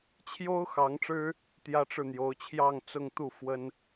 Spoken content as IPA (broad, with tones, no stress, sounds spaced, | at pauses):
t͡ɕʰ j o˥ ʊ̯ x ɑ˧˥ ŋ ʈ͡ʂ ɻ̩˥ | t̪ j ä˥ ʈ͡ʂ ɻ̩˥˩ n̪ j o˧˥ ʊ̯ t͡ɕʰ j ɑ˥˧ ŋ t͡s ʊ˥˧ ŋ t̪ u˥˩ f w ə˥ n